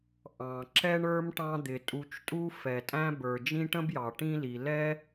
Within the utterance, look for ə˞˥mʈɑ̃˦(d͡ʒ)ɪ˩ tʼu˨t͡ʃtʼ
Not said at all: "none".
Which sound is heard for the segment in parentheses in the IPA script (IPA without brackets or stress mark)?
d̪